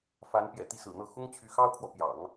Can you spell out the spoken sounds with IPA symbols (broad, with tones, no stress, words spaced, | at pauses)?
fa˧˥npjɛ̰˨˩t̪i˥˩ sɹ̩˨˩n̪ɤ˥˩ xʊ˥ŋt͡ɕʰy˧˥xɑ˥ʊ̯kʰwɔ˨ pjɑ̰˨˩˦ŋ